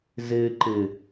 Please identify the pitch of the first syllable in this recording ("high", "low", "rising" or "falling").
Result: low